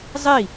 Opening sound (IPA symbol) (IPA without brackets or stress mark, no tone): zˤ